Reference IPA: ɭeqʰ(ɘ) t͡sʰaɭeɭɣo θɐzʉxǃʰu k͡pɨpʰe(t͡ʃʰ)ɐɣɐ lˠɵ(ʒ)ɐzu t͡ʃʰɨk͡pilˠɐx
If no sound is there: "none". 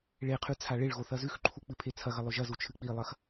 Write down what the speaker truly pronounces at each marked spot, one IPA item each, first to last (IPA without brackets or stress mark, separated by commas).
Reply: ʉ, t͡sʰ, ʒ